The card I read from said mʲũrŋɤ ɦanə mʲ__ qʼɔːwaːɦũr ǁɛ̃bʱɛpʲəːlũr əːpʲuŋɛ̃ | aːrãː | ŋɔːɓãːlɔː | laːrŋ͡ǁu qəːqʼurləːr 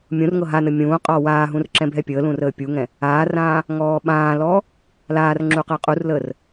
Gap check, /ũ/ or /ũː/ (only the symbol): ũː